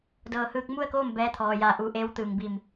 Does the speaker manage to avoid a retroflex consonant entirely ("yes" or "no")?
yes